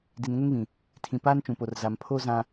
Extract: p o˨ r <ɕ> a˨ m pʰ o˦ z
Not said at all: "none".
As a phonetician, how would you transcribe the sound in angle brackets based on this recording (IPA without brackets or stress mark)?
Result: z